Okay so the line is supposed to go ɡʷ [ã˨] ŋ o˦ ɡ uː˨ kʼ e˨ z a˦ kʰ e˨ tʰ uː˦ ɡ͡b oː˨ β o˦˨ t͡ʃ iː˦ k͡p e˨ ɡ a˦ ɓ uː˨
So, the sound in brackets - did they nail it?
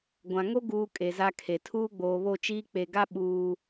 yes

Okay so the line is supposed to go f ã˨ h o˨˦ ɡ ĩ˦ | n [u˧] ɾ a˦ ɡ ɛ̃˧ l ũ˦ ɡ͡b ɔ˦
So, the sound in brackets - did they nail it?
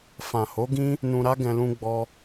no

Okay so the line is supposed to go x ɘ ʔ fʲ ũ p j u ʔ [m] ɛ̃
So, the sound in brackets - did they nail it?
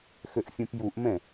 yes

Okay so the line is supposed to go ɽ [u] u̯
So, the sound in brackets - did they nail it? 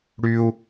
no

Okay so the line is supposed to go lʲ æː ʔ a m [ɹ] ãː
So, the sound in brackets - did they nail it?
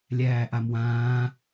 no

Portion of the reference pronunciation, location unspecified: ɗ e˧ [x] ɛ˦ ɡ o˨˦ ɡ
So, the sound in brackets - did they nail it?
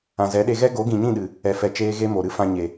no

